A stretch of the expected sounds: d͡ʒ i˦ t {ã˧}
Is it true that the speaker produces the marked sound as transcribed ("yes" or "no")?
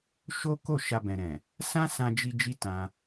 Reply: yes